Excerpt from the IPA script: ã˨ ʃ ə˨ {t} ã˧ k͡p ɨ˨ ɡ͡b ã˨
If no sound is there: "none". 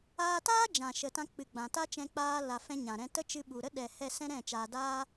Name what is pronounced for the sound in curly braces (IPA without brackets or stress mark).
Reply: t